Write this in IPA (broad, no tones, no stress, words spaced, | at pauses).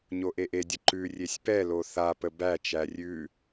ɲoʔeʔedʲə ǃʉ rʲesʲpɛlo θapə bæt͡ʃæ rʲʉ